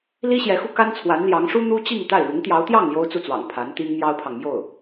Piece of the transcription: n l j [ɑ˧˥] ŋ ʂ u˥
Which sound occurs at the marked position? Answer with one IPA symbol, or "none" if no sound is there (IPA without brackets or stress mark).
ɑ˧˥